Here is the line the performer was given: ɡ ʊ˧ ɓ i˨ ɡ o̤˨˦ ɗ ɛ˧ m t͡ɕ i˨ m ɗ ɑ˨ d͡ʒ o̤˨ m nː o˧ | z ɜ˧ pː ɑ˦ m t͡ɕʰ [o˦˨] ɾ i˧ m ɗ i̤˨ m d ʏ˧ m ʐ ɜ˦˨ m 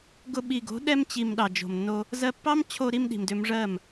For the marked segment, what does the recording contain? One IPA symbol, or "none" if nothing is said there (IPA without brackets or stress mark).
o˧